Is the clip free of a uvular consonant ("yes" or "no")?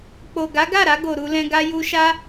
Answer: yes